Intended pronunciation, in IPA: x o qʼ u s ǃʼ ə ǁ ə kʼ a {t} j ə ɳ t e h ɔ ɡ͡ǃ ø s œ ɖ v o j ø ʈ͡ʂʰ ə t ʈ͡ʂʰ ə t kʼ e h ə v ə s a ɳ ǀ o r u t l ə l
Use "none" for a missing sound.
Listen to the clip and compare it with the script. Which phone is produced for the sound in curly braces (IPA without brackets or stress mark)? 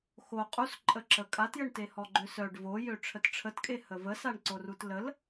t